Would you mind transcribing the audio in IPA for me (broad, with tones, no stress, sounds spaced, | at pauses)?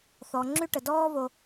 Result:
θ ɔ˩ ŋ͡ǁ y˥ ʈ ə˩ d ɔː˥ v o˧